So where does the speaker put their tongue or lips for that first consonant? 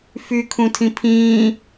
lips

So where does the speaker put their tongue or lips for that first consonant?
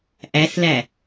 throat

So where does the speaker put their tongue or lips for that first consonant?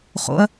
uvula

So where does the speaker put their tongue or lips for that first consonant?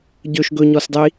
palate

